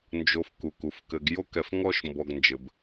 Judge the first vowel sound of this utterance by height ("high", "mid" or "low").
mid